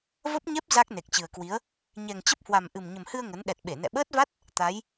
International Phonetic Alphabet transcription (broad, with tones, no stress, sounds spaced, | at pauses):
v ə˦˥ p̚ ɲ ɛ˦˥ p̚ z a˦˥ k̚ n e˨˩ k̚ t͡ɕ ɨ˨˩ ə̯ k w i˨˦ ə̯ | ɲ ɛ˨˩ ŋ t͡ɕ ə˦˥ p̚ h w a˨˩ m ʔ ɨ˨˩ m ɲ ə˨˩ m h ɨ˧ ə̯ ŋ ə˨˦ n ɗ ɛ˨˩ t̚ ɓ e˧˩ n ɛ̰˧˨ ɓ əː˦˥ t̚ v a˦˥ t̚ | t̪ a˨˦ j